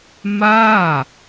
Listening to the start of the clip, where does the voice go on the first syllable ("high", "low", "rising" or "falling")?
falling